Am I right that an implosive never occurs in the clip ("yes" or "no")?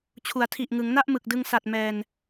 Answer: yes